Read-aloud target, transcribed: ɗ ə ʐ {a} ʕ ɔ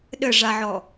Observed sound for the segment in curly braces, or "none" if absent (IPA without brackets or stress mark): a